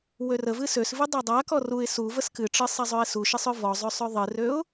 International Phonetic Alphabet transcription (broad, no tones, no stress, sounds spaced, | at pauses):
w ø r ə v ɨ s ø s v ɨ dˤ a dˤ a k ɔ r u ɪ̯ s u v ə s k ɨ ʈ͡ʂ ɨ sˤ ɛ zˤ ø ɪ̯ s u ʃ ɨ sˤ ø v ɔ zˤ ø sˤ ø ðˤ ɨ r ø ʊ̯